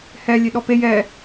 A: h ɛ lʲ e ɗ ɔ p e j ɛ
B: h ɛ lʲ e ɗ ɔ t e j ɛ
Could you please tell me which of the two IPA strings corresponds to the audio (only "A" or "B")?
A